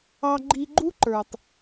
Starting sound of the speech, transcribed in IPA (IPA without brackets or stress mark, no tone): ɑ